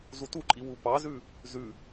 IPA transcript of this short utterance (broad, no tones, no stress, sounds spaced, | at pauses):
z u t u ǃʼ i w u p ɑ z ʉ | z ʉ